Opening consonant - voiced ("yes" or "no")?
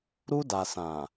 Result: yes